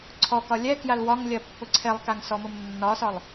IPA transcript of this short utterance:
ǀʰ ɔ k ɒ lʲ ɛ k j a l w ɒ ŋ lʲ ɜ pː ʊ ǀʰ ɛ lˠ k a ŋ s ɔ m ʊ m nː ɒ s ɒ lˠ

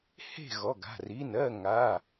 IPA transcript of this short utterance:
h e̤˥˨ ɣ ɔ˩˧˩ ɡ a̤˩˧˩ r i˩˧˩ n ɜ˥˨ ŋ a˩˧˩

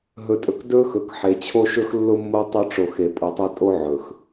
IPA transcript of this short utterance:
ɦ ɵ˨ tʼ ɵ˨ k d ɵ˦ x ɵ˨ k ħ e˨ t͡ɕʰ o˦ ʃ ɵ˦ x lː ʊ˦ mː o˦ tˤ ʊ˦ ʈ͡ʂ o˨ x e˨ pʼ u˨ tˤ e˦ tʼ o˦ ʕ ɵ˨ x

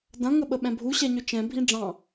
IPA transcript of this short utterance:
d ɐ̃ ŋ ə ɓ ə ɓ ɛ̃ bʱ u ɕ ɛ ɲ ø t͡ʃ ɛ̃ bʱ ĩ ɖ͡ʐ ɑ̃

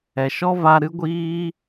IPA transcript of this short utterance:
ɛ˨ ʃ ɔ˦ v a˧ ɾ ɨ˦ ɡʷ iː˦

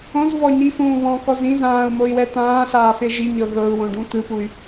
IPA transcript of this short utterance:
õ z v ɔ ɲ i f ũː β ɔ̃ k ɔ z ĩ z ãː u̯ m o i̯ w ɛ t̪ ãː ɬ aː f e ʒ i ɲ ɤ ɣ ɤ u̯ w õ ɖ ũ t̪ ɯ p u y̯

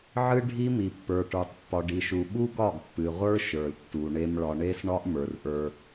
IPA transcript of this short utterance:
ʕ ɨ˦ ɖʱ i˦ m i˨ pː ə˞˨ ʈ ə˞˨ tˤ pː ɒ˨ ɖ i˨ ʃ u˨ ɓ u˦ ɡ ɒ˦˨ ɡ pː ɨ˨ ʁʷ ə˞˦ ʃ ə˞˨ l tː u˨ ɳ e˦ m ɭ ɒ˨ ɳ e˦ s ɳ ɒ˦ ʔ m ə˞˨ r ʔ ə˞˦

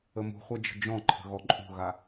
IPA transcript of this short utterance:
ə m ṳ χʷ a d͡ʒ ə̤ d͡ʒ ɔ̃ ǃʰ ə̤ ɣ ɔ ǃʼ ṳ ɣ a

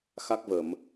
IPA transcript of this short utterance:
x a˦˥ k̚ v ə˧˩˨ m

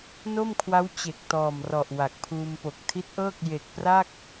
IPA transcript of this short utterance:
n o˥˩ m kʰ w a˦˥ w t͡ɕ e˨˩ k̚ t ɔː˨˩ m r ɔ˨˩ ʔ w a˨˩ k̚ pʰ uː˧ m p o˨˩ k̚ tʰ i˦˥ t̚ ʔ ɤː˥˩ k̚ j e˨˩ k̚ p r a˥˩ k̚

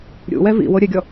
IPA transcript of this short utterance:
ɾʲ ṵ w ɛ v ḭ w o ɾʲ ɘ ɡʲ ɔ

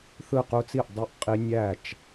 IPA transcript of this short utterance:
θ ɯ˥˩ q u˦˥ t͡s i˥˩ ʔ dˤ u˥˧ ʔ qʼ i˦˥ nʲ æ˥˩ t͡ʃ

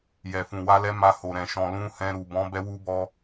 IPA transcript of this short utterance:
j ɛ˨ f ũ˨ w a˧ l ɛ˦ m a˧ h o˨ ɾ ɛ̃˨ ʃ ɔ̃˨ l ũ˧ h ɛ̃˧ ɾ u˨ b ɔ̃˨˦ b ɛ˧ w u˧ b ɔ˧

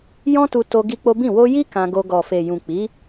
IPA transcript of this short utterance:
j ɔ̃˦ t u˧ t o˧ ɡ i˦ k͡p o˦ b ĩ˦˨ w o˧ j i˦ k ã˧ ɡ o˧ ɡ ɔ˨ f e˨ j ũ˨ k͡p i˨˦

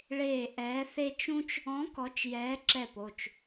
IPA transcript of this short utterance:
ɭ eː˦˨ ʔ ɛː˧˥ θ e˥ t͡ʃ ũ˥ t͡ʃ | ɔ̃˧˥ k ɔ˧˥ t͡ʃ j ɛː˧˥ ǁ ɛ˦˨ p o˦˨ t͡ʃ

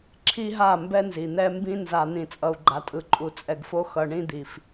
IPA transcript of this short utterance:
ǁʰ i˦ ɦ a˦˨ m b ɛ˦ n z i˨ n̪ ɛ˦ m b ĩ˦ n z a˨ n̪ ĩ˨ t͡sʼ ʌ˨ u̯ ɡ͡ǃ a˨ tʼ ɯ˨ ǃʼ u˨ t͡sʼ ɛ˨ ɡ f o˦ x ʌ˨ ɳ ĩ˦ d̪ i˨ f

